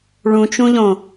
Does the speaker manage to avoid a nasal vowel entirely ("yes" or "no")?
no